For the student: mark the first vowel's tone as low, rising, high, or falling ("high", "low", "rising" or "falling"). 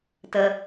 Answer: high